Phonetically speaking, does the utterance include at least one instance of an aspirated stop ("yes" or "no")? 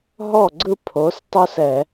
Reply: yes